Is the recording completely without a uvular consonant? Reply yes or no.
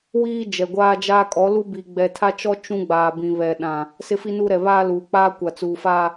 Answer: yes